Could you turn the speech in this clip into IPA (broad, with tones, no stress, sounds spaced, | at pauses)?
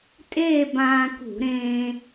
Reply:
tʼ eː˥˧ b ãː˧ k ṳ˧˩˧ ɾ ẽː˧